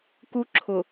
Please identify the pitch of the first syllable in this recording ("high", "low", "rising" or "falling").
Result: high